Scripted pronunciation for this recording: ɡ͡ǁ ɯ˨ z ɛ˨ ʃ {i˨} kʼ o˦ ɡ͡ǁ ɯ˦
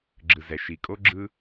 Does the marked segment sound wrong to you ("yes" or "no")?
no